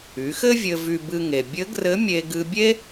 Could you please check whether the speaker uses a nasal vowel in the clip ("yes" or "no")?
no